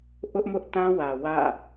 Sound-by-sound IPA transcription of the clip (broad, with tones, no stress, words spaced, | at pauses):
ʔʊ˦ʔmʊ˦ʔtã˦wä˨ wä̰˦˨